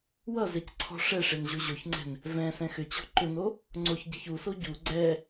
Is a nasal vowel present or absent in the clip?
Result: present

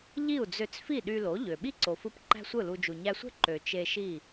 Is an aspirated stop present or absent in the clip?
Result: absent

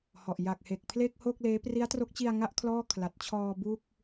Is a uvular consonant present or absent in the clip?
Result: absent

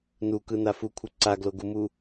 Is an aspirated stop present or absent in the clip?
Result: present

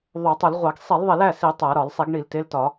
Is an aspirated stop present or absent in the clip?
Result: absent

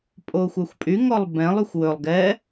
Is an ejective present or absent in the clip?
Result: present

